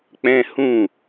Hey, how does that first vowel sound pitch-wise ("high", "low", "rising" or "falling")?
high